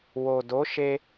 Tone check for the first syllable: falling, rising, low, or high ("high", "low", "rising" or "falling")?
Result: low